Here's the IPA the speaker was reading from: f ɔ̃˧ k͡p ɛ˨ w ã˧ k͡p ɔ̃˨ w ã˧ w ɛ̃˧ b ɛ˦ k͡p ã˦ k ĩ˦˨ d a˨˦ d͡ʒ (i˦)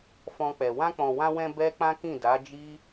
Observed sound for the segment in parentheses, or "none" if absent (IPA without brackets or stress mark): i˦